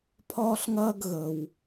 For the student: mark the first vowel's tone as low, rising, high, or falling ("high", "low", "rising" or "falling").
high